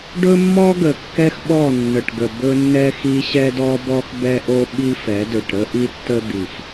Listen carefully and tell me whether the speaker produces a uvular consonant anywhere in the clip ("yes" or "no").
no